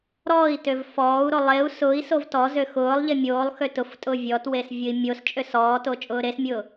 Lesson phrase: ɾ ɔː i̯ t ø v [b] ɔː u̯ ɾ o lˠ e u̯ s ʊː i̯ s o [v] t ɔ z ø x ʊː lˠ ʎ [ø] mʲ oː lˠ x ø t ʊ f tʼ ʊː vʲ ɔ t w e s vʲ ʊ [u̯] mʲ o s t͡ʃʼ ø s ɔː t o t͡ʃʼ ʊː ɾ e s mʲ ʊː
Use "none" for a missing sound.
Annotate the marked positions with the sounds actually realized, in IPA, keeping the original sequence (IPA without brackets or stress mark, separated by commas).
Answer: f, v, e, i̯